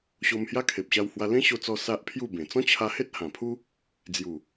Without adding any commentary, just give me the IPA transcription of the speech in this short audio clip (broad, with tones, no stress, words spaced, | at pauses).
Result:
ɕo˧mhja˦kʰe˨p̚ ɕa˧whwa˧ lẽ˦ɕo˧t͡sɔ˧ sa˦ʔpʰju˥˧bẽ˨˩ t͡sɔ̃˦t͡ɕʰa˧he˦t̚ hã˨˩pʰu˦ | d͡zju˨˩